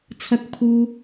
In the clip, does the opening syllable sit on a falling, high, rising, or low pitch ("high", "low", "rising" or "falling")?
high